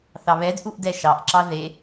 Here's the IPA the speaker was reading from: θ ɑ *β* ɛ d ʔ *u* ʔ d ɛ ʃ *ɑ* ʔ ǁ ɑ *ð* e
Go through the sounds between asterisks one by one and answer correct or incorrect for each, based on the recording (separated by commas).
correct, correct, correct, correct